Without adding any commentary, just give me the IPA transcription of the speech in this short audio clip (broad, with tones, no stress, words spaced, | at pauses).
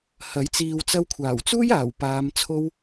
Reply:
hɐ˨˥j t͡siː˨wt͡sɐ˧wkʷʰaː˨˩wt͡suː˥j aː˨˩wpaː˨˧mt͡sʰo˥w